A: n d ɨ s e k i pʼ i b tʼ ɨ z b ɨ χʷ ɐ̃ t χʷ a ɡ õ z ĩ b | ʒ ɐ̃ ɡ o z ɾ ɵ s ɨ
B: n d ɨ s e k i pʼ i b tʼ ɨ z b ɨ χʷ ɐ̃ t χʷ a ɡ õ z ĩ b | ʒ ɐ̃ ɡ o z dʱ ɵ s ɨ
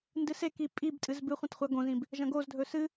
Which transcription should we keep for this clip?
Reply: B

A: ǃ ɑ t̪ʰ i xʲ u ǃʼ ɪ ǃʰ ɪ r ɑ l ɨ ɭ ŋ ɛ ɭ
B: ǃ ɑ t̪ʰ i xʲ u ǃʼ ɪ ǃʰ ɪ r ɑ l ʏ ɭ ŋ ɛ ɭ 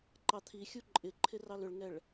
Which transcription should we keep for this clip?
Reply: B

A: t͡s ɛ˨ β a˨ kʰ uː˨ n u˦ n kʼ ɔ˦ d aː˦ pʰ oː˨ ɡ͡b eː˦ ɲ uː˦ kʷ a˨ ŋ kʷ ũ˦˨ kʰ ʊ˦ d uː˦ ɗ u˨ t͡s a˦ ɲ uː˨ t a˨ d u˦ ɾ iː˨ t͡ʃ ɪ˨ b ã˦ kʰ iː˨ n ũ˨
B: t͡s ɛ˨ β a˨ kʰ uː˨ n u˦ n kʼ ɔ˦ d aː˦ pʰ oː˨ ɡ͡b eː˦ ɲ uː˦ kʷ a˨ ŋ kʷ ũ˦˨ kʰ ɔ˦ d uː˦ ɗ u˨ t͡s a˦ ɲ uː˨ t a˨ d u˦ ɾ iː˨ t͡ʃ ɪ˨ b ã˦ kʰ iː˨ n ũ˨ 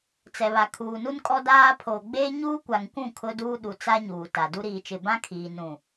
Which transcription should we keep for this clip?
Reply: A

